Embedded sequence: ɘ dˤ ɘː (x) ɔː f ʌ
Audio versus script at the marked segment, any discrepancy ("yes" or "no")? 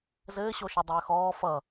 no